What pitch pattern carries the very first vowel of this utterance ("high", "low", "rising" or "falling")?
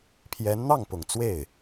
rising